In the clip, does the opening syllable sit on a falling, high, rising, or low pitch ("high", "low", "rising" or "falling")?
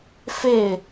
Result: falling